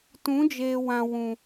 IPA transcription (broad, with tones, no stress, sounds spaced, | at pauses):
t ũ˨˦ d͡ʒ eː˨ w ã˨ w ũ˨